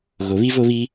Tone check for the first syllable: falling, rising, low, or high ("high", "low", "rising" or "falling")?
rising